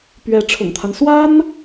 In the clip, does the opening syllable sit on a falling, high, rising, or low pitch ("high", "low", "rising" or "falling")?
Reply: rising